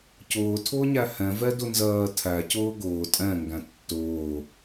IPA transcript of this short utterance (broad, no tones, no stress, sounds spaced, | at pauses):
c ʊː tʰ ʊː ɲ æ h ɛ̃ v ɛ d ʊ n z ɜː tʰ æ c ʊː ɡ ʊː tʼ ɛ̃ ŋ ɡ æ̃ tː ʊː